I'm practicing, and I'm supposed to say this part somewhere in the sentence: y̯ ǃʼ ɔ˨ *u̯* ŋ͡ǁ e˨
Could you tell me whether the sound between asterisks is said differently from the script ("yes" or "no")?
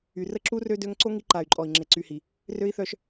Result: yes